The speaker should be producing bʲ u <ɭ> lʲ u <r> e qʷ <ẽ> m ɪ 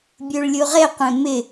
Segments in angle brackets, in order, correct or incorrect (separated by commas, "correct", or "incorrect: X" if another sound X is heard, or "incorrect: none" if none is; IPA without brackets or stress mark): correct, incorrect: ʁ, correct